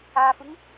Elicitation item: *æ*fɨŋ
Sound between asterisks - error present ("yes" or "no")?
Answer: yes